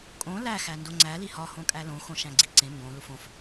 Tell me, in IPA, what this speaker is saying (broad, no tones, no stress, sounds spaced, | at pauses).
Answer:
kʼ õ l æ x æ n d o ŋ͡ǀ æ l i h ɒ h õ kʼ æ l õ x õ ʃ æ̃ ɡ͡ǀ i ǀ ẽ m b õ l u f õ f